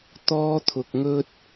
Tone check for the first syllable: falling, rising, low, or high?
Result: high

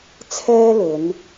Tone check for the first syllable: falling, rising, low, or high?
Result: high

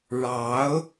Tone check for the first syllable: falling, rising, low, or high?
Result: rising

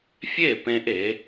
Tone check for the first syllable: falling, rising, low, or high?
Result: falling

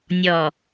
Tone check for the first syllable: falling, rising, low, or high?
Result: low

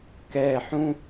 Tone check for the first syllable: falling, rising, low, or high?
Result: low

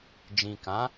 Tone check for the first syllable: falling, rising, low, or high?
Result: low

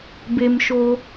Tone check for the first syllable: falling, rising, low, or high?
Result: low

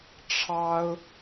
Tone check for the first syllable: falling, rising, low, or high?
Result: high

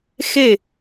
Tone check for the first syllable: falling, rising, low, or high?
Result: falling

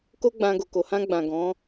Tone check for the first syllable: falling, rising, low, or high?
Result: high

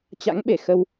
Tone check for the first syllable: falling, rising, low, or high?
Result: rising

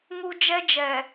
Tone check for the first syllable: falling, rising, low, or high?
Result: high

